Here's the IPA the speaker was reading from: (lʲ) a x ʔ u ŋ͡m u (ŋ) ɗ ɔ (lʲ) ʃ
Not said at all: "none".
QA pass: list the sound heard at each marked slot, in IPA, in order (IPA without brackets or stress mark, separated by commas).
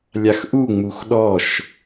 lʲ, x, none